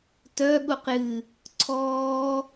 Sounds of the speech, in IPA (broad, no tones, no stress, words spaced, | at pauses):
tœ ɠuqjɨ | ǀʰɔː